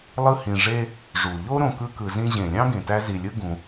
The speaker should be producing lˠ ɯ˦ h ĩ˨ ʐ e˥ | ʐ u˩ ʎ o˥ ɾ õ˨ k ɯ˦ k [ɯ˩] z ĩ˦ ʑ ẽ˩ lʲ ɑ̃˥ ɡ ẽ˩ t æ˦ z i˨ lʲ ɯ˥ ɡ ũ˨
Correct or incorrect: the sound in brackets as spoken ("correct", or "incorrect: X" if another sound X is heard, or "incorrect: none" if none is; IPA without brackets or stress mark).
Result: incorrect: ɯ˨